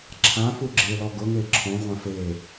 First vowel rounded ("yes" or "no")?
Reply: no